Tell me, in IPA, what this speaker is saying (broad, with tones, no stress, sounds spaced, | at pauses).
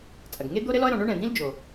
t͡sʼ ɐ˩ ɡ ŋ e˥ d̪ o˥ ɾ ɘ˥ l ɔ˥ ə̯ ɾ ɔ̃˩ ɳ o˥ ɳ ɛ̃˩ d̪ ĩ˥ l d͡ʒ o˩